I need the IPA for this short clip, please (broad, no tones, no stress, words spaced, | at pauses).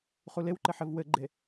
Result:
χulewǃɘ ħɘvwɘɡ͡ǃe